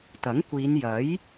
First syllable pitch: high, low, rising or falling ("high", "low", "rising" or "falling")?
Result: rising